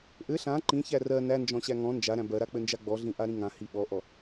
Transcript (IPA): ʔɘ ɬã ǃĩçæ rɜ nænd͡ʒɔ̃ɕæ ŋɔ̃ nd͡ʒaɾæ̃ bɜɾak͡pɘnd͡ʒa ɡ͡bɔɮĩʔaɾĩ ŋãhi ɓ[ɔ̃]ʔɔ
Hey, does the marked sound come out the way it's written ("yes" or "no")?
no